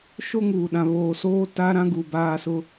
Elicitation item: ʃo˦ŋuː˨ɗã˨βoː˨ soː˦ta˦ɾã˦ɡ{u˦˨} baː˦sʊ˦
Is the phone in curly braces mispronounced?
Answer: yes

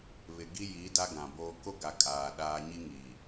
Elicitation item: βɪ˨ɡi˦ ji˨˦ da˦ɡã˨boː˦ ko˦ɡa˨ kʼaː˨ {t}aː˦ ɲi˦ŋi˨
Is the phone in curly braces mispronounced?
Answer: yes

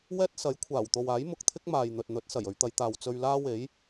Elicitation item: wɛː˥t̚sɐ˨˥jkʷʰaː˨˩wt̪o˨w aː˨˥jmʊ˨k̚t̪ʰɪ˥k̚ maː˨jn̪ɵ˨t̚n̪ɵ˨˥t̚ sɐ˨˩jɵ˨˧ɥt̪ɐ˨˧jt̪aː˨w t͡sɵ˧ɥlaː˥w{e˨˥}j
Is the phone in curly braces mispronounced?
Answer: no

